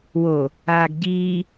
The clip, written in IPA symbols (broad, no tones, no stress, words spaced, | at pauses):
wo | aːɡɟiː